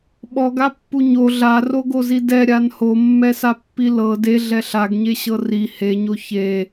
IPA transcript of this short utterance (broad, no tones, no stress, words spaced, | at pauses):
ɓɔɡapːu ɲo ɮaroɡozi dɛɾʲan homːɛsapːi lɤ deɮɛ ɬaɡɲeɕɤ ri heɲo çe